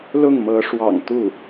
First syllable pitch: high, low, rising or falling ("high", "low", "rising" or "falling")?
falling